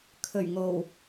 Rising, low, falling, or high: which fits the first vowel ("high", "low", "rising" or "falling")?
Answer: low